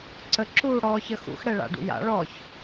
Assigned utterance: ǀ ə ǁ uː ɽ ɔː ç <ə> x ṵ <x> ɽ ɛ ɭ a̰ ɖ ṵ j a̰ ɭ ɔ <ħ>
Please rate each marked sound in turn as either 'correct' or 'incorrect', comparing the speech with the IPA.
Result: correct, correct, incorrect: ç

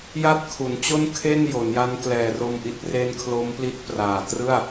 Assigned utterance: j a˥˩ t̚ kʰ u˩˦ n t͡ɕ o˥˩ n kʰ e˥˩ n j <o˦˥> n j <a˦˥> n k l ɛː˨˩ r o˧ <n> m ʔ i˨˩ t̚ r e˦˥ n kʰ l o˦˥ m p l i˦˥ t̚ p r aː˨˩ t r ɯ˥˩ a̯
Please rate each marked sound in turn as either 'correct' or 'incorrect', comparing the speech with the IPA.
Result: incorrect: o˩˦, correct, incorrect: none

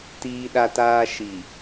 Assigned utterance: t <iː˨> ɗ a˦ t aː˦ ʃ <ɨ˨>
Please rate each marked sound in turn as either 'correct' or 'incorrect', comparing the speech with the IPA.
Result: incorrect: iː˦, incorrect: i˨

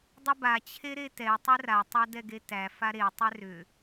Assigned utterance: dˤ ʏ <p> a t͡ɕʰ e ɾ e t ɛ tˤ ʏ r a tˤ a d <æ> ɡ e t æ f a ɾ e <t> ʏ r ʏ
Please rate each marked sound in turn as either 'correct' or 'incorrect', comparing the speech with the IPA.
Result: incorrect: b, incorrect: ɛ, incorrect: tˤ

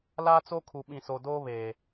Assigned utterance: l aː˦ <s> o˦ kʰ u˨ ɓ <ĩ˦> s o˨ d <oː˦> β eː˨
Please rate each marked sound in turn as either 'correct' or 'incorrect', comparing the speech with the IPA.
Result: incorrect: t͡s, incorrect: ĩ˨, correct

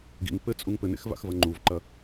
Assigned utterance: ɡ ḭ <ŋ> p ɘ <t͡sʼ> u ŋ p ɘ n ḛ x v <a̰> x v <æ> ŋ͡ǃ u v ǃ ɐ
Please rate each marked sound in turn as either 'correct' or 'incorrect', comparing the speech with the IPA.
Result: correct, correct, correct, incorrect: ɐ

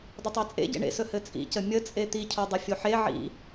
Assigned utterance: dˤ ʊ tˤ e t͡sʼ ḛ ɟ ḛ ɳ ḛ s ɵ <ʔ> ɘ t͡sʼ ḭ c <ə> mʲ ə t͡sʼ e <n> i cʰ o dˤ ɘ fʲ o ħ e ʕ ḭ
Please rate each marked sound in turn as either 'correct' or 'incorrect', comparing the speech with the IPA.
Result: incorrect: h, correct, incorrect: t̪

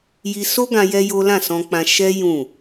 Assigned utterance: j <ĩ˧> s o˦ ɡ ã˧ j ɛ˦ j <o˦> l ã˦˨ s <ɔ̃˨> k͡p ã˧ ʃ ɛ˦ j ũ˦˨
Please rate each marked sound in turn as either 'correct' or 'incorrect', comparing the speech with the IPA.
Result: incorrect: i˧, correct, incorrect: ɔ̃˧

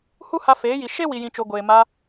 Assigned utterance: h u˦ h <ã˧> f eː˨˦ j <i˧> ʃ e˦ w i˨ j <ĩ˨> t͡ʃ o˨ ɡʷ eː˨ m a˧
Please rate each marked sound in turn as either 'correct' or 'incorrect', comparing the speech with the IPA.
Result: incorrect: a˧, incorrect: i˨, correct

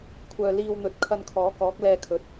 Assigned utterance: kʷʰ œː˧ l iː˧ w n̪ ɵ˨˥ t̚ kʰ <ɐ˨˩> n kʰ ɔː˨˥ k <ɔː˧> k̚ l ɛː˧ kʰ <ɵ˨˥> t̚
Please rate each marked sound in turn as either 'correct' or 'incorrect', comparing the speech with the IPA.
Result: incorrect: ɐ˧, incorrect: ɔː˨˥, correct

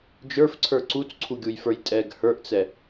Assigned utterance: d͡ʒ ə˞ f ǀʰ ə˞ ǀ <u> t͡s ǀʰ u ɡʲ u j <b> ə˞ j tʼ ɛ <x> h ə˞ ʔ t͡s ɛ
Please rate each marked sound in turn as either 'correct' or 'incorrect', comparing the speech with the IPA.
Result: correct, incorrect: f, incorrect: ɡ

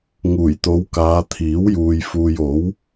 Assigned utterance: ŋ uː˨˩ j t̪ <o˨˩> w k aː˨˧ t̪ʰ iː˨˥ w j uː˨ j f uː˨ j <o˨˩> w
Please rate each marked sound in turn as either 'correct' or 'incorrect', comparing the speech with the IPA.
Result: incorrect: o˨˧, incorrect: o˨˥

